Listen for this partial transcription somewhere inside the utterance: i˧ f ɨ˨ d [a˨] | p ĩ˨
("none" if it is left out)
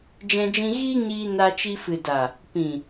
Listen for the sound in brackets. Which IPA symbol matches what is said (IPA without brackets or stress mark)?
a˨